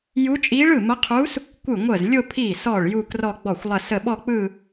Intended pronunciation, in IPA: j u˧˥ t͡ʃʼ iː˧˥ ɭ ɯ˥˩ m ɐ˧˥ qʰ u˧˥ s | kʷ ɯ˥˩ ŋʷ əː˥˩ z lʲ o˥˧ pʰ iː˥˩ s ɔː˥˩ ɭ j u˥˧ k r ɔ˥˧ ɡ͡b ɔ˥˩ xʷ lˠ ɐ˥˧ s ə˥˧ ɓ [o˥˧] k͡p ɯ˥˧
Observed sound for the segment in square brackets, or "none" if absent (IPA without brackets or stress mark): ɔ˥˧